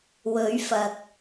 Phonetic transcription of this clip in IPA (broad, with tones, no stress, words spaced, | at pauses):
wɵ˨˥ɥfɐ˨k̚